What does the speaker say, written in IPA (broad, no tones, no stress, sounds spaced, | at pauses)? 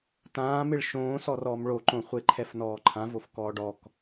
t ãː m ɪ ɭ ʃ õː s ɔ r ɔː m ɭ o ǃ õ χʷ e ǃʰ ɛ f n ɔː ǃʰ ã v o f k ɔː ɖ ɔ k